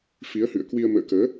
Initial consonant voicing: voiceless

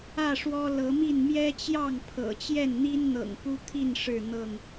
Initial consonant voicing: voiceless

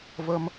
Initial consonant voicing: voiced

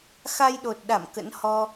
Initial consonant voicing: voiceless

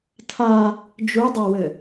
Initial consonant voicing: voiceless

